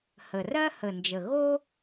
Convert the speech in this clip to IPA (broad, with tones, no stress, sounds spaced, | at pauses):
h ə˨˩ r ɜ˥ h ə˨˩ n d͡ʒ ə˨˩ ɣ o˥